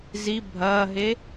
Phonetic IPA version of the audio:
z i bʱ ɐː ɦ e

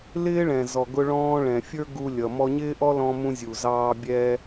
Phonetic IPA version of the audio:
l ɪː˥ ɭ ɛ̃˩ z ɔ˩ ɡ ʊ˧ ɭ ɔ̃ː˧ ɭ ɛ̃˩ fʲ ə˞˥ ɡ u˧ lʲ ʌ˩ m ɔ˧ ɲ ɪː˥ ʔ ɔ˥ l ɔ̃˧ m ũ˧ zʲ u˩ z ɑː˧ bʲ ɛ˧

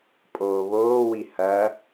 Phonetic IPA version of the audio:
pʼ oː β oː w i h ɐ

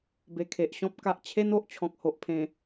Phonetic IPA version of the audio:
b e˨˩ kʰ e˨ ʔ ɕ ɔ̃˦ p̚ k a˨ ʔ t͡ɕʰ e˦ n o˨ ʔ t͡ɕʰ ɔ̃˨ k̚ h o˨ ʔ pʰ ẽ˨˩

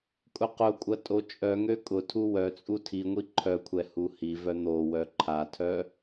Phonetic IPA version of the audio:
kʼ ʊ q ʊ kʷʼ ɐ tʼ o t͡ʃʼ œ ŋ ø kʼ ʊ tʰ u w œ t͡sʼ u tʰ i ŋʷ i ǃʰ œ kʷʰ ɛ h u h i v œ n̪ o w œ ǃʰ a tʰ œ

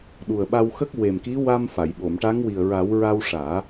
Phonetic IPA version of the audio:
ɗ u˨˩ ə̯ ɓ a˧ w x ə˦˥ k̚ w e˨˩ m k i˧˥ w a˧ m f a˨˩˨ j ɓ o˨˩˨ m ʈ a˧˥ ŋ w i˨˩ ə̯ ɹ a˨˩˦ w ɹ a˧ w ʂ aː˨˩˦

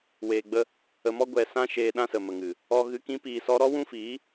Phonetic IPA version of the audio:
w eː˨ ɡ͡b ə˧ | ə˨ m ɔ˦ ɡʷ ɛ˧ s ã˦ ʃ eː˧ ɗ ã˦ s ə˨ m ə˨ ŋ ɨ˨ | ɔ˧ ɣ ɨ˨˦ k ĩ˨˦ p iː˧ s ɔ˦ ɾ ɔ˦ w ũ˦ f iː˨˦

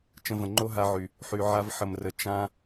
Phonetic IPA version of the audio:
t͡ʃ ə̃˧ v ə̃˨ ŋ͡ǃ o˦ ɦ a˧ ʕ y˨ | ħ y˨ ʕ a˧ v ħ ə˨ m r ə˨ t͡ʃ ã˧

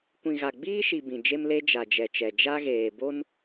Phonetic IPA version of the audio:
kʷ ĩ˨ ɣ a˨ ɡ͡b iː˦ ʃ i˨ b ĩ˨ d͡ʒ e˦ m l e˦ d͡ʒ a˨ d͡ʒ ɛ˨ t͡ʃ ɛ˨ d͡ʒ a˦ ɣ eː˨ b o˦ n

